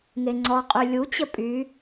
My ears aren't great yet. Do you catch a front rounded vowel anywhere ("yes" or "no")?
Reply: yes